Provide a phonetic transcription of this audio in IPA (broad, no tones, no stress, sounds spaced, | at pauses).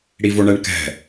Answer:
ɽ i v o ɳ ɛ ɳ k ɛ̤